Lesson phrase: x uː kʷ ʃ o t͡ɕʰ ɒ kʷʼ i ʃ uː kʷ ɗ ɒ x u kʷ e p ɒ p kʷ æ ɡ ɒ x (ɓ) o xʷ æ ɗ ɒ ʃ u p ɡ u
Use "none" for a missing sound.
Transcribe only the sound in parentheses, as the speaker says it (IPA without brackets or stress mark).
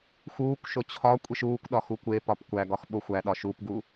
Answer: ɓ